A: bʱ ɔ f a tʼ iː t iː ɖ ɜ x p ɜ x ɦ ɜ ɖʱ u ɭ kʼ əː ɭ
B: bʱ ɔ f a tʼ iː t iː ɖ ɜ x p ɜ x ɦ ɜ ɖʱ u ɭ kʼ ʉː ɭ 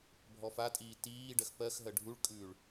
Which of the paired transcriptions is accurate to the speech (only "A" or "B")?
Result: B